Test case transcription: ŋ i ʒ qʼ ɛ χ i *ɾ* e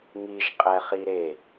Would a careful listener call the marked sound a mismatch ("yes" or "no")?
no